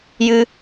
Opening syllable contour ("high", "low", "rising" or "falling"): high